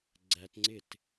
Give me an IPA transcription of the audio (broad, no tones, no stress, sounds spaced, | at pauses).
ɡ͡ǀ æ t ŋ͡ǀ ɪ t